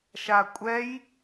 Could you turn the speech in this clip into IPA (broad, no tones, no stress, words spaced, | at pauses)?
ʃakʷʼɛj